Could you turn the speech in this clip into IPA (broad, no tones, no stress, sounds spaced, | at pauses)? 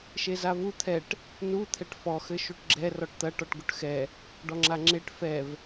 ʃ e z a v u t̪ʰ ɛ ʈ | n u t̪ʰ ɛ ʈ f ɔ x ɘ ʃ u ʈ ɡ͡ǁ ɛ r ɔ ʈ t̪ ɐ ʈ ɔ ʈ ɡ u ʈ x ɛ | ɖ ɔ ŋ͡ǁ a ŋ͡ǁ e ʈ f ɛ v